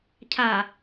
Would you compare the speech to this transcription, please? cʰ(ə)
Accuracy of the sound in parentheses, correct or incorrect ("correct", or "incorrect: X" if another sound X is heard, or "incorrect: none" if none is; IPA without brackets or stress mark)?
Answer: incorrect: a